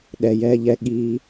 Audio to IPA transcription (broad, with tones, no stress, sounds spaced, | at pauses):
ɗ ɛ˨ j ɛː˧ ʎ ɛ˧ ɠ iː˧